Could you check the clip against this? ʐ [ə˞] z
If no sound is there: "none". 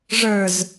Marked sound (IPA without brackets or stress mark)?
ə˞